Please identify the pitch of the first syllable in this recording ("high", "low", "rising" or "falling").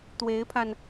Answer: rising